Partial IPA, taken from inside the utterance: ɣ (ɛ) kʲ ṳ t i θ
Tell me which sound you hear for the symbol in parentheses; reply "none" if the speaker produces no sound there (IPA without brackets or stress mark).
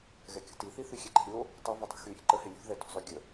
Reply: ɛ